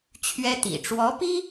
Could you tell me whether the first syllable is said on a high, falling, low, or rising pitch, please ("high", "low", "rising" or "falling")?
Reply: high